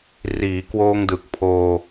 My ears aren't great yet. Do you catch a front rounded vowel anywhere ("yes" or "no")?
no